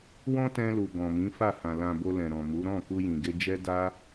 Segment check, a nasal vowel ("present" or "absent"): present